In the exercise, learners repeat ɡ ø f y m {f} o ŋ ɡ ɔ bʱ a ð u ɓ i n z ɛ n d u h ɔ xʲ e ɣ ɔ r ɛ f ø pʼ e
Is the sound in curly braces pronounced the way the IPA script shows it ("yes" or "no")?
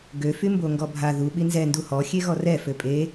no